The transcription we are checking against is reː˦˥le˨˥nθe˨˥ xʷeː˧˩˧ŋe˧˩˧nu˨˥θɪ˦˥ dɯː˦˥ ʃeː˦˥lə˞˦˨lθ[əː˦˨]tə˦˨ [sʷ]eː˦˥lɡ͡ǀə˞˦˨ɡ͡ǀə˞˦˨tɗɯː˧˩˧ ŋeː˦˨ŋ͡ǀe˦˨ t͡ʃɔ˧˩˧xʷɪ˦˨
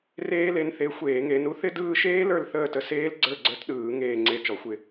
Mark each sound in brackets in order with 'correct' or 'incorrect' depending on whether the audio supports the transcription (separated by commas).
correct, incorrect